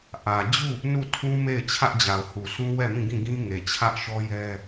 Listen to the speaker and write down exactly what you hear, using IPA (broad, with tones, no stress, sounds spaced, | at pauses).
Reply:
ʔ ä˨ d͡ʑ u˦˨ | n u˦˨ tʰ ũ˦ m e˦˨ ɪ̯ t͡ɕʰ ä˦ ʔ d͡ʑ a˨ ʊ̯ h u˨ s ũ˦ w ɛ˦˨ m ĩ˦˨ ɡ ĩ˦˨ ɡ ĩ˦ ŋ e˨ t͡ɕʰ ä˦ ʔ ʃ ɔ˦ j ɛ˦